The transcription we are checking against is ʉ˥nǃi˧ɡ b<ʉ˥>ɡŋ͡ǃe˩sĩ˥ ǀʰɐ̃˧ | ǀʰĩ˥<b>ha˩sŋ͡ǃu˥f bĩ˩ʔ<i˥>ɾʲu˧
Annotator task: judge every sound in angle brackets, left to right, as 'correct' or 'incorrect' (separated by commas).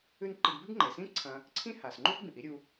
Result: correct, incorrect, correct